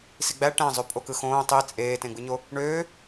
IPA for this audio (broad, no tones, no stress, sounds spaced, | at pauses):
s i ɡ͡b æ ʈ æ̃ zˤ ø pʼ o k ɯ x õː tˤ i t͡sʼ eː t ẽ ɡ͡b ɯ ɲ o | ɳ øː